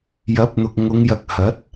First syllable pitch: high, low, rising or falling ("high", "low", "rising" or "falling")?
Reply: rising